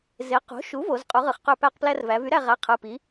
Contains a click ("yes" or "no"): no